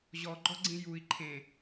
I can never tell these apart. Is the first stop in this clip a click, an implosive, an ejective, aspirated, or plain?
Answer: click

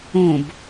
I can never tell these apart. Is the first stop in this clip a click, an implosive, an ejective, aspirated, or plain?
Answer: plain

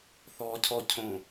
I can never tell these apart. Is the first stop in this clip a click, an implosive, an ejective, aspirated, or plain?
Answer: aspirated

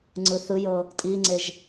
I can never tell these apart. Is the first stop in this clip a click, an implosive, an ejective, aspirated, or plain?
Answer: click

